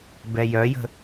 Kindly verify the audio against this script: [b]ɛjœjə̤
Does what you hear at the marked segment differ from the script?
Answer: no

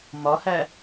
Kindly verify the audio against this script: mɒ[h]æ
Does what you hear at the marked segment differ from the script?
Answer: no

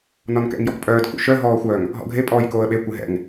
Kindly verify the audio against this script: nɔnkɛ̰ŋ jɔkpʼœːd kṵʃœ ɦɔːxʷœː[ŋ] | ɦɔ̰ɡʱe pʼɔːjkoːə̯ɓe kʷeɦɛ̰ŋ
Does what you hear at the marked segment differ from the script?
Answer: no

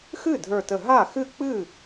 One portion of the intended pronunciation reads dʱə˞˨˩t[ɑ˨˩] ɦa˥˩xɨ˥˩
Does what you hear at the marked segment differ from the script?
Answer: yes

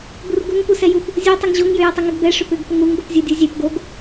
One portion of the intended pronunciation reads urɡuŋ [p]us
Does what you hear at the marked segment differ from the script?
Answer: no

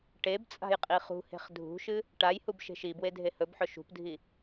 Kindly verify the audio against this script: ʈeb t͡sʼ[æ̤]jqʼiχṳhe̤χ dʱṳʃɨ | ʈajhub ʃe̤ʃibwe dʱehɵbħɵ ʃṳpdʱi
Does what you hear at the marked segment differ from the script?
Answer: yes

